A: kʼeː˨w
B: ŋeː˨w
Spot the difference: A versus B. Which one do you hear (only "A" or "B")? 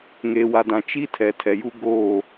B